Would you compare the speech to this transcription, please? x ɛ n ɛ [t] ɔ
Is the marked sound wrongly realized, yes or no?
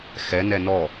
yes